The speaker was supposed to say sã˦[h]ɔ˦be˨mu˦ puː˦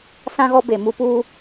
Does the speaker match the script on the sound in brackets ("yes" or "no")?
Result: no